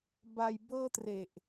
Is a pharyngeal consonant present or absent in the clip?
absent